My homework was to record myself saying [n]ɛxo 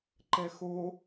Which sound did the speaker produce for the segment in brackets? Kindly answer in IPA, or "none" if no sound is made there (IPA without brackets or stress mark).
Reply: ǃ